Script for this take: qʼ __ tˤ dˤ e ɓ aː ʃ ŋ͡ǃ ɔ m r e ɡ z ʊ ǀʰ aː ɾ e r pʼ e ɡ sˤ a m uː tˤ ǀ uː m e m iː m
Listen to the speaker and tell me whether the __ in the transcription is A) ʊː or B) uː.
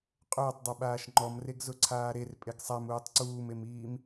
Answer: A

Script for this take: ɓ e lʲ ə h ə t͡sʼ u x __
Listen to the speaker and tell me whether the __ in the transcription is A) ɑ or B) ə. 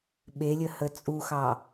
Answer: A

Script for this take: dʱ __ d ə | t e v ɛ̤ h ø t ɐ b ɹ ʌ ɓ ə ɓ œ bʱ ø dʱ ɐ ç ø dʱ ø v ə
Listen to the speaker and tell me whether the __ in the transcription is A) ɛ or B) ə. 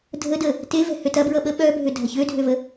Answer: B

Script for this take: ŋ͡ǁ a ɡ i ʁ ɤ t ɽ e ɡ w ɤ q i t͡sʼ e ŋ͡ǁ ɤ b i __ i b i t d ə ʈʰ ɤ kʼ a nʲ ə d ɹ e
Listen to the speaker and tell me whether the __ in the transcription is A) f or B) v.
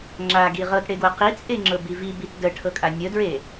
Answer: B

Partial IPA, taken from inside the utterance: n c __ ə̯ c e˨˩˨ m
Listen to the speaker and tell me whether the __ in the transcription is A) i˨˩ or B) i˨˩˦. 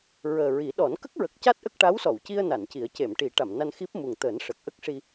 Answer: B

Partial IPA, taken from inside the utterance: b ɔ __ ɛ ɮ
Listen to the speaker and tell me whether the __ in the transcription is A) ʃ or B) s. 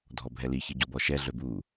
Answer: A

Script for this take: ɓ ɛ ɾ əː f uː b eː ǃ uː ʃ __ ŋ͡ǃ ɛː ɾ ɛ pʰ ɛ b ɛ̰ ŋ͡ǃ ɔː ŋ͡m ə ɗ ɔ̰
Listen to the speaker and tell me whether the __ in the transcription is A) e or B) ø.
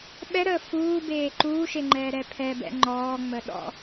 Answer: A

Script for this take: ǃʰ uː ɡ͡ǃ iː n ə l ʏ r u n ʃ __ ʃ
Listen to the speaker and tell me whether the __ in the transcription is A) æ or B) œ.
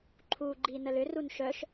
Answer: B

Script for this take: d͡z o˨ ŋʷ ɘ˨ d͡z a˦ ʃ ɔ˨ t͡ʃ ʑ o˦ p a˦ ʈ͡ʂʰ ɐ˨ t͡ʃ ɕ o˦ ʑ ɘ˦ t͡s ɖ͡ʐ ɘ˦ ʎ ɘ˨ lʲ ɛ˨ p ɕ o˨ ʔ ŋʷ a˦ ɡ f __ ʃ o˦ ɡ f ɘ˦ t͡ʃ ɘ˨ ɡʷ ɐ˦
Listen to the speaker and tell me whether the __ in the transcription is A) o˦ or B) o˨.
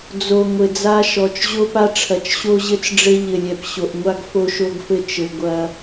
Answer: A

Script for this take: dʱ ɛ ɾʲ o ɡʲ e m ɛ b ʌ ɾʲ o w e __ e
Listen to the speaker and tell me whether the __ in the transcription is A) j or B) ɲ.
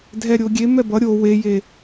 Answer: A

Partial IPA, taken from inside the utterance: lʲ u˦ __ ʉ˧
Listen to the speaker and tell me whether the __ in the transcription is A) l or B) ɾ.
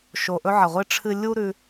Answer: B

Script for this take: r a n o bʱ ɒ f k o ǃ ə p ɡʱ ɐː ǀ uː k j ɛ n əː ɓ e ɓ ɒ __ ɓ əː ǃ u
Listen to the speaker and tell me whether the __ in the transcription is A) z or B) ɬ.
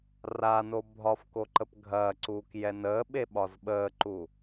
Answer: A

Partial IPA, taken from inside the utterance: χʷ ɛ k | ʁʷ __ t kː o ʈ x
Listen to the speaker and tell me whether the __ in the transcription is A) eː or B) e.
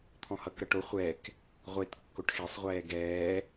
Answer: B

